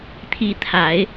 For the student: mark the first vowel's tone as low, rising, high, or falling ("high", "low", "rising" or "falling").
high